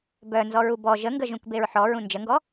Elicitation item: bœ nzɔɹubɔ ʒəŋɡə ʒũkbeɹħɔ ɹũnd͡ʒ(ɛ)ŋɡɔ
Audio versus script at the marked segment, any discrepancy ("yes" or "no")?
yes